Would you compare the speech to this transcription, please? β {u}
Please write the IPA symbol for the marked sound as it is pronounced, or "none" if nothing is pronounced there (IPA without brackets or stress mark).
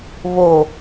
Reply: o